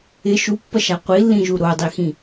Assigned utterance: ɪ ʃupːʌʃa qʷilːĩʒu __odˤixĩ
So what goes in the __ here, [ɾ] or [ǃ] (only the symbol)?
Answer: ɾ